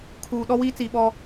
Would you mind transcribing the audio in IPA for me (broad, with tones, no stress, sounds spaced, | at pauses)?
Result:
kʰ uː˨ ɗ ɔ˦ w iː˦ t͡s iː˨ ɓ ɔ˦